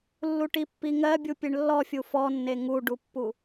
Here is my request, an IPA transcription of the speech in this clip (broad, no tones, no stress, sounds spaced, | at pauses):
lː u ʈ i pː i ŋ ɜ bʲ u pʲ e ɳ lː ɔ fʲ u f ɔ nː e ŋ u ɖ u pː u